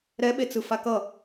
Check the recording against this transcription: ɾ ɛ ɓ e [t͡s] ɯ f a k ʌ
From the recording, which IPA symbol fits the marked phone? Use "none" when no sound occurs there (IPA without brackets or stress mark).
t͡s